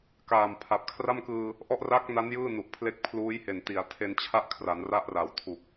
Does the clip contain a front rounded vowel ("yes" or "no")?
no